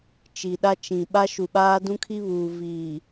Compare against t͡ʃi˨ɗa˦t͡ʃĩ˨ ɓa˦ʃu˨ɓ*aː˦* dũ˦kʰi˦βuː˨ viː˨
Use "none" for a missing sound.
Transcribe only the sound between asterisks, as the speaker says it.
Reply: aː˦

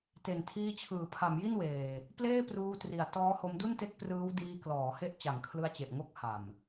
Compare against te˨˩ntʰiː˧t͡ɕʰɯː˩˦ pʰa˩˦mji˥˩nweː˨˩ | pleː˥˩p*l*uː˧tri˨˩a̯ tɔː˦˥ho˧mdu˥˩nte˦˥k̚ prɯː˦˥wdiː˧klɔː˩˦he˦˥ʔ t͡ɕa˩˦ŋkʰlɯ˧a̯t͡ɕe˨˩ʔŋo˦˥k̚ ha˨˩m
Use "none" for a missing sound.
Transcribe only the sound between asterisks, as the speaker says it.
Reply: r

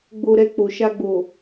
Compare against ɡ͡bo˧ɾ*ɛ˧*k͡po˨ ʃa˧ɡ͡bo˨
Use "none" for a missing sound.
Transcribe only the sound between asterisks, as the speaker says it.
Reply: ɛ˧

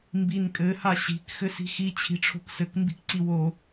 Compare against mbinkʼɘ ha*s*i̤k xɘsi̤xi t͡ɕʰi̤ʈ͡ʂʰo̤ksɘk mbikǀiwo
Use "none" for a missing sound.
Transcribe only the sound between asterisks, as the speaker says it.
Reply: ɕ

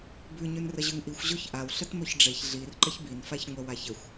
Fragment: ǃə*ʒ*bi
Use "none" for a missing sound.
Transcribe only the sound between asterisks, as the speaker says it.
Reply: ç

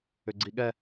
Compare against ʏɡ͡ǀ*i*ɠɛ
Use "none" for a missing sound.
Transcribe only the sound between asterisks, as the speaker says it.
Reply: i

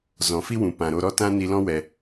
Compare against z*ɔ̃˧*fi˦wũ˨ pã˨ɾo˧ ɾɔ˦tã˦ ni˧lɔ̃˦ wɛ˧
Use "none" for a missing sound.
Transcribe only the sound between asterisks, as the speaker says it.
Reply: ɔ̃˨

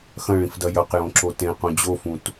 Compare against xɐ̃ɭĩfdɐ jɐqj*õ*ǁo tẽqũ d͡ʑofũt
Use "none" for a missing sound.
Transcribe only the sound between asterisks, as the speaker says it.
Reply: õ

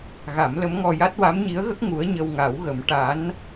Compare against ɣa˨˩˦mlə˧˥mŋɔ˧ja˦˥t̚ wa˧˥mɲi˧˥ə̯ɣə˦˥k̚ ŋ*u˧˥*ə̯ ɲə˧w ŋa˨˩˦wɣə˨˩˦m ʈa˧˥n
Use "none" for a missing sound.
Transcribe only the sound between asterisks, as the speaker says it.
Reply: u˧˥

